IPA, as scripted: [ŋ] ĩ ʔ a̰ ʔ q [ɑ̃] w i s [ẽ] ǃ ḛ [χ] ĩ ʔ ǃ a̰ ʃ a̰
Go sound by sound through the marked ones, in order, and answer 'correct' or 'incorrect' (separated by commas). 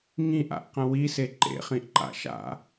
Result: correct, incorrect, incorrect, correct